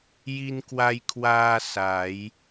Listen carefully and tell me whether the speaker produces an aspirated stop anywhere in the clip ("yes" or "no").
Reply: yes